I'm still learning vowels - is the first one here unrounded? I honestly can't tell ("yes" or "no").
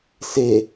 yes